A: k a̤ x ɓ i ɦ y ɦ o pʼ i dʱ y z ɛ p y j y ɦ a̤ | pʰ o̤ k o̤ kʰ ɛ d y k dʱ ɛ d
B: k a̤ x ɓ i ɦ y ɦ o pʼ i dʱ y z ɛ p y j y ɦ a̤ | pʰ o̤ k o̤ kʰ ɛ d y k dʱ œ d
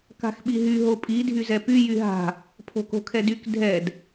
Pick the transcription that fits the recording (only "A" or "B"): A